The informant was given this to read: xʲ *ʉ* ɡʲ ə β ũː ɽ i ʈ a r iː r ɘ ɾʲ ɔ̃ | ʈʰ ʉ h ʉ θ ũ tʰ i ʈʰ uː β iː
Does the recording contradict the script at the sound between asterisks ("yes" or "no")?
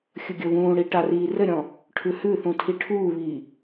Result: yes